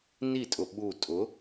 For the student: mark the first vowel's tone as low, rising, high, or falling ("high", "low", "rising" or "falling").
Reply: falling